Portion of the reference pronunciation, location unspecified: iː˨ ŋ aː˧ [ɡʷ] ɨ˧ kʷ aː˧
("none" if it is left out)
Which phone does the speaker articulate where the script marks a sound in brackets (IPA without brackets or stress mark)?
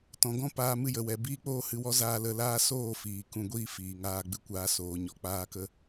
ɡ͡b